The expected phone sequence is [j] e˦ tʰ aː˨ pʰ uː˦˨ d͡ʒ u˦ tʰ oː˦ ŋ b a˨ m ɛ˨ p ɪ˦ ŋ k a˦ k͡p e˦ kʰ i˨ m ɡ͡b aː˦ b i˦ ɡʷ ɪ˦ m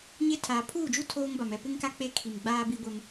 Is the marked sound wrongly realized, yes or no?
yes